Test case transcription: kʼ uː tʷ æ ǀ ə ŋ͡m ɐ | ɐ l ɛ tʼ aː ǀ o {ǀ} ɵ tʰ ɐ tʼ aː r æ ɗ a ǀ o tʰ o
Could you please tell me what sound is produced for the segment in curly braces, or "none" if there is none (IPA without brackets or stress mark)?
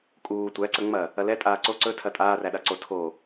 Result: ǀ